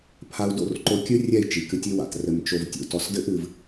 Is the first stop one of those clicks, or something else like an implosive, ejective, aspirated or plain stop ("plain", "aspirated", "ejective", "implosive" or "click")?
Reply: aspirated